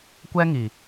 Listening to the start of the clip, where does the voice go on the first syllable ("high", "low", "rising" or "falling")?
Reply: high